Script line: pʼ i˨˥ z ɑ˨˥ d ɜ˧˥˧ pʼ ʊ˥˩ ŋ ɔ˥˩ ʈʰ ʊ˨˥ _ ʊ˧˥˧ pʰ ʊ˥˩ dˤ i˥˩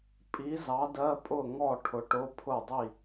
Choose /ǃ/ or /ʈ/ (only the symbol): ʈ